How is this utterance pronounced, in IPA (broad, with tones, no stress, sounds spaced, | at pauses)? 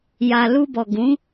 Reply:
j a˨ l u˧ b ɔ˨ ɡ ũ˨˦